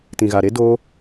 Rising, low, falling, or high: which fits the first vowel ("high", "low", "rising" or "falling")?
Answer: low